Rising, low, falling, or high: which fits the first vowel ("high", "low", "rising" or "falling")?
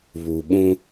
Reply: low